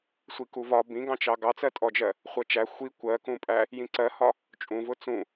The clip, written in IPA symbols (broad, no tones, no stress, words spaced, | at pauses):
sʷikuvɒ bĩɡɑ̃t͡ʃɑ ɡɑt͡sɜtʼɔd͡ʒɜ | χʷɜt͡ʃæ xʷi kʷɜkũpʼæ | jĩǀɜhɒ | t͡ʃʼũvʊ t͡sũ